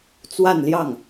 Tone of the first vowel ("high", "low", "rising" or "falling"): falling